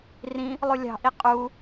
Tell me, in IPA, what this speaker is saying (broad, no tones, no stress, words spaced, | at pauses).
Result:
rĩ | lˠulʲɑ̤ ʔiqʼu